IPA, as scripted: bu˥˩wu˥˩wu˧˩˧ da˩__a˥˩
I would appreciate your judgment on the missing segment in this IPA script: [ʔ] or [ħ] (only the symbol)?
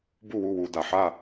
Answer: ħ